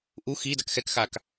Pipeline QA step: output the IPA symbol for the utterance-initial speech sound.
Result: ʔ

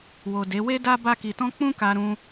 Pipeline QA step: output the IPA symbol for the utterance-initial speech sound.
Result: w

